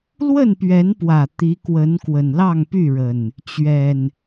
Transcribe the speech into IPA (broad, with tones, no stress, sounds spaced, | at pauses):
l w ə˥˨ n p ɥ ɛ˨˦ n p w ä˨˩ t̪ i˨˦ k w ə˨˦ n k w ə˨˩ n l ɑ˥˨ ŋ p y˥˨ ɻ ə˨˩ n | t͡ɕ ɥ ɛ˨˩ n